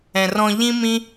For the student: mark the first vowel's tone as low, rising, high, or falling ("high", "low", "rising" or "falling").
low